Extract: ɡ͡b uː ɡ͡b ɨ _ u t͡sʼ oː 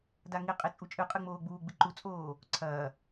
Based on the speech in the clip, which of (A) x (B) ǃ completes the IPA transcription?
B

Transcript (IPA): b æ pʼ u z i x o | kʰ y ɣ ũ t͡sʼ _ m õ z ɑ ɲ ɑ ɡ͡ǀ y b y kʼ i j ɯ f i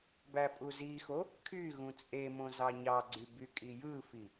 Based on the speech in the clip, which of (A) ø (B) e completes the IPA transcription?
B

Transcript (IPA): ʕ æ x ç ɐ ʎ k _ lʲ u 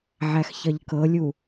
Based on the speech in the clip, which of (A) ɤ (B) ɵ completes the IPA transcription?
A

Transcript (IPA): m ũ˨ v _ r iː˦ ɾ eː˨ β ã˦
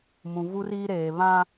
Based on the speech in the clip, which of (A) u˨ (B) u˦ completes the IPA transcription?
B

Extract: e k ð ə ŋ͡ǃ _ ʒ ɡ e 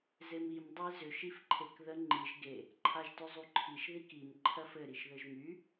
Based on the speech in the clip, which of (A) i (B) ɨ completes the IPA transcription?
A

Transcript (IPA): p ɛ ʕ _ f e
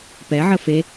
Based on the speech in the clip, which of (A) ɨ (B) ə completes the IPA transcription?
B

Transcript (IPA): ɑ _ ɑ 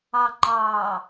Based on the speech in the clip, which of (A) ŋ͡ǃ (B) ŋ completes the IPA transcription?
A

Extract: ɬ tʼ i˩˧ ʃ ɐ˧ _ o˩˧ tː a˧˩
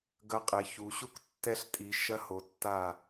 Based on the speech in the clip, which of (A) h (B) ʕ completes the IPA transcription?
A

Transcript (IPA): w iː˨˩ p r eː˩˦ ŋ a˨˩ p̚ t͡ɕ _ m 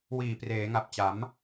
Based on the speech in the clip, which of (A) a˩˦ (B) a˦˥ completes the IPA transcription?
A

